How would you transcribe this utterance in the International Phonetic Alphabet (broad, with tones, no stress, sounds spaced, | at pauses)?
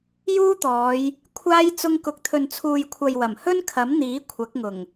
j uː˥ t̪ ɔː˨˧ j | kʷʰ aː˧ j t͡s ʊ˧ ŋ k ʊ˨˥ k̚ t̪ʰ ɵ˨ n t͡sʰ uː˨ j kʷʰ ɐ˨ j w ɐ˨˩ m h ɵ˥ n kʰ ɐ˨˥ m n̪ iː˨˥ kʷʰ ɐ˨˥ k̚ ŋ ʊ˨˩ ŋ